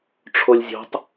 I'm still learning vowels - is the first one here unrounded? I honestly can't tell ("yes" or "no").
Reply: no